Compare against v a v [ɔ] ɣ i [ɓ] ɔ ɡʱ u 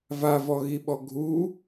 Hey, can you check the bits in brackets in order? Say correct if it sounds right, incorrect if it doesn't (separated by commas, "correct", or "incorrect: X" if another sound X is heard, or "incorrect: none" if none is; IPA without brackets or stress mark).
correct, correct